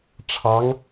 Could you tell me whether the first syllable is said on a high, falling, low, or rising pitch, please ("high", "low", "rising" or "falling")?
rising